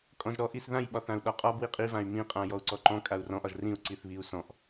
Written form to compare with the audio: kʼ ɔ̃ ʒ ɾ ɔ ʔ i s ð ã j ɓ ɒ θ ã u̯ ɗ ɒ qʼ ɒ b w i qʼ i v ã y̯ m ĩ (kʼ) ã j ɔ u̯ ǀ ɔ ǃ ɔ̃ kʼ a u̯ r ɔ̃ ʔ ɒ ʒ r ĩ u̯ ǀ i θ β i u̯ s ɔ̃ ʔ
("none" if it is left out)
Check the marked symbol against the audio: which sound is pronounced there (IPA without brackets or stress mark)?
qʼ